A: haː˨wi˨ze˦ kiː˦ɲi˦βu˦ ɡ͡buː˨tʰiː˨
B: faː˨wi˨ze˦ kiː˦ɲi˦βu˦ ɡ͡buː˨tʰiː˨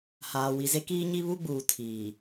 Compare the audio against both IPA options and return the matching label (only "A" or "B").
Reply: A